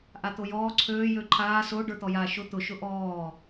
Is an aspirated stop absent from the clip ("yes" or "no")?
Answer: no